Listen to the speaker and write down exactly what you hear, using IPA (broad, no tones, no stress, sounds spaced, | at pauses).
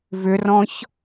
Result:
v ʏ r ɔ̃ ç